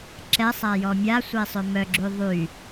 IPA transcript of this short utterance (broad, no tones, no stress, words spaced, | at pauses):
ǁɛ sˤajɔmʲa sʷesˤømœɡ͡ǁy ðˤy